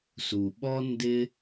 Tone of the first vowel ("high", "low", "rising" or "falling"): low